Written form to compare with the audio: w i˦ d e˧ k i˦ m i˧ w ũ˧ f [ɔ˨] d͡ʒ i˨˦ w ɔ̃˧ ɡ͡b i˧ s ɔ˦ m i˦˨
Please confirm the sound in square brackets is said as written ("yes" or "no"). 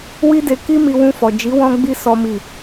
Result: yes